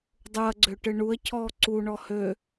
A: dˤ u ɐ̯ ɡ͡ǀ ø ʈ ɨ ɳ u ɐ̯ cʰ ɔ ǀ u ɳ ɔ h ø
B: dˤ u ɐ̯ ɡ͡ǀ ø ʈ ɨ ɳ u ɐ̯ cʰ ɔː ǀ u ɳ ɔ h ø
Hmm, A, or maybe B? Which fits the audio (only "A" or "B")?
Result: B